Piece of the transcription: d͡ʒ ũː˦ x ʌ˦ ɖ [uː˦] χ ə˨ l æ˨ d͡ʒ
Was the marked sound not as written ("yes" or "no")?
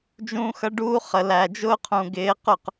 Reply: no